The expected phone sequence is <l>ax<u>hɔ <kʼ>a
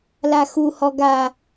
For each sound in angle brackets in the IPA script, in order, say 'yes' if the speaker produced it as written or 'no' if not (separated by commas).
yes, yes, no